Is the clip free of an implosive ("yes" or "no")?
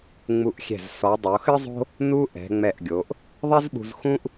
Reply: no